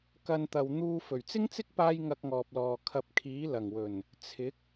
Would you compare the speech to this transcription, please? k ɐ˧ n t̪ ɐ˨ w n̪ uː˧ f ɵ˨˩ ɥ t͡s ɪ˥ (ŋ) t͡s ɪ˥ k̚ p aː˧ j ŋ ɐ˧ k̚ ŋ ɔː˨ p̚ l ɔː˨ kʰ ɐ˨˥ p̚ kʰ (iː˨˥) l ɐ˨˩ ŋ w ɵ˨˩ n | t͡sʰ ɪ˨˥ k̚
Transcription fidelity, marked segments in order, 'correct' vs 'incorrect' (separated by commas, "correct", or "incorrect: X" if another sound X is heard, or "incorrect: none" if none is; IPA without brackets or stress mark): correct, correct